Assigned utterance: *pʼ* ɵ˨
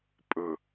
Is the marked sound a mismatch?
no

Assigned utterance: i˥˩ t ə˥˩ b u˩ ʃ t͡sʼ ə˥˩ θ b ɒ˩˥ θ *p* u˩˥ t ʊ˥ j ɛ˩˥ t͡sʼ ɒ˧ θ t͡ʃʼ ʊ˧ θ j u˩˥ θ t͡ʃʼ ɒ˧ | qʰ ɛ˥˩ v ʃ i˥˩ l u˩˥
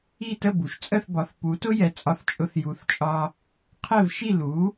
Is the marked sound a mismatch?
no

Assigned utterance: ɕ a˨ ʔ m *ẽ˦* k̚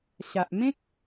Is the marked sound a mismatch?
no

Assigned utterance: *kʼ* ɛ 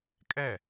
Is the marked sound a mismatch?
no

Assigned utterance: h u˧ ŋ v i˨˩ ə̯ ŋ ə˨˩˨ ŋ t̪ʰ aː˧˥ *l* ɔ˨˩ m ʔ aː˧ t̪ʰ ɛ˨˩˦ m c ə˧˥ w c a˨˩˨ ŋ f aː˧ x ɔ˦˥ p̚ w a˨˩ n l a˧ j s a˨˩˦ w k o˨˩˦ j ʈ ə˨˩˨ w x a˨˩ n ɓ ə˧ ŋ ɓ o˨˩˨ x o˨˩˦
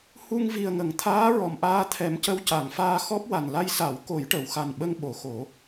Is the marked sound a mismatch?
yes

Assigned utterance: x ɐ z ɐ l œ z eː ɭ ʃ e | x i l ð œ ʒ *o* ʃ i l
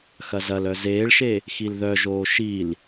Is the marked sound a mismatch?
yes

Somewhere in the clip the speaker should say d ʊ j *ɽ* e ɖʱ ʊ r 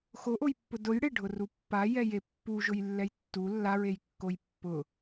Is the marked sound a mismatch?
no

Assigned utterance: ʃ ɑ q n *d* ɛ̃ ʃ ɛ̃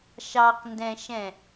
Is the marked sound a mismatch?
no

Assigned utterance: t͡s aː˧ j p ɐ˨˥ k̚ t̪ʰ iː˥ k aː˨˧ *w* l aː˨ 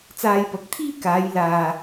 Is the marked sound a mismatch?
yes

